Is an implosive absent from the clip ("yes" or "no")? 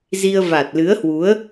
yes